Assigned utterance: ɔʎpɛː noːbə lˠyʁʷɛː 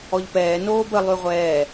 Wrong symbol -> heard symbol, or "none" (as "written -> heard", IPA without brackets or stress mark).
none